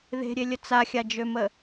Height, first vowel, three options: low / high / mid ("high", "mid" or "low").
mid